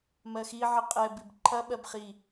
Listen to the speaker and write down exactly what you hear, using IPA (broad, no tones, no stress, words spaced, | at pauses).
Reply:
mɜxiʕə qʼɛbib ǃʰɐɓɜb χi